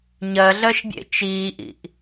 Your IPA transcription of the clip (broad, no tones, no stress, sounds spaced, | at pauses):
ɲ ɜ ɮ ɜ ʃ bʲ ḛ t͡ʃ iː ʔ ḭ ʔ